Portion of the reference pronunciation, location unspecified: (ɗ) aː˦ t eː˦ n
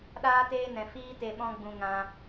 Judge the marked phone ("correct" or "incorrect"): correct